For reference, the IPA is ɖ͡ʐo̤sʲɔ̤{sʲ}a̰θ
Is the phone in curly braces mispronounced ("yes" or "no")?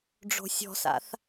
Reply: yes